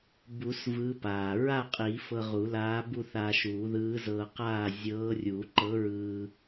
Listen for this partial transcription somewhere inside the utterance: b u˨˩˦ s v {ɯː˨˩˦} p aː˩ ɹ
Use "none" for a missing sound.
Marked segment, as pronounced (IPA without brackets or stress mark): ɯː˧˥